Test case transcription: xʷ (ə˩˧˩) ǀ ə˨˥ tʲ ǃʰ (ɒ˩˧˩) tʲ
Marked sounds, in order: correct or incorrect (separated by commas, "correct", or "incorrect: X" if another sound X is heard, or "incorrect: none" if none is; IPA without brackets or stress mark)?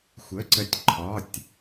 correct, correct